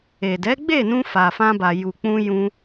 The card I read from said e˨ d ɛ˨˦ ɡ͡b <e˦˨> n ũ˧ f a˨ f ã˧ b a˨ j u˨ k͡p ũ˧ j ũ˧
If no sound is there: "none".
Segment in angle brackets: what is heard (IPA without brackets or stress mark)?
e˦˨